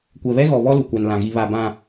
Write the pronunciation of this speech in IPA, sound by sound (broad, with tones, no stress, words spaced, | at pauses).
kʷɛ˨βɛ˦ɣɔ˨βɔ˦ lu˨kʷa˨nlã˨ɣi˨ βa˨bã˨